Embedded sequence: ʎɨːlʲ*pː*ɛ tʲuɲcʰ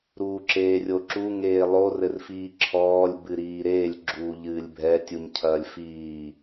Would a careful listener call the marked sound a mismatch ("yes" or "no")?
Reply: yes